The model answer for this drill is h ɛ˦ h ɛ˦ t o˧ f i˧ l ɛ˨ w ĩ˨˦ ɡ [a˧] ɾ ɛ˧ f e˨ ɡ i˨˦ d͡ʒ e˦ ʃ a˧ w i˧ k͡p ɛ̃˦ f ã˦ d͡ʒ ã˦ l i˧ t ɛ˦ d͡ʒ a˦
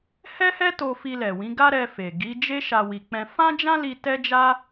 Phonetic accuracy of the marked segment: incorrect: a˦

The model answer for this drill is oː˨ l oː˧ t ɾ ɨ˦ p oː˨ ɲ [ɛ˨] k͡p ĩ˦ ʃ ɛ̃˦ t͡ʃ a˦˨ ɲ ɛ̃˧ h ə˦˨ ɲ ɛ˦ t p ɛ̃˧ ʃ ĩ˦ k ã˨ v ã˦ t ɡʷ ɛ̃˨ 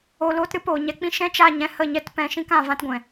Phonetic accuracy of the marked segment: incorrect: ɛ˧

